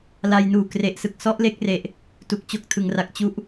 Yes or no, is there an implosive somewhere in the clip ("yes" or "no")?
no